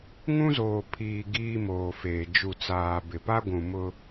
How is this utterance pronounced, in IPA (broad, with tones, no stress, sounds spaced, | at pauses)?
ŋ ũ˦ z oː˨ pʰ iː˨ ɡ iː˦ m oː˨ f eː˨ d͡ʒ u˨ t͡s aː˨ b ɪ˨ p a˦ ɡʷ ũ˨ m ʊ˦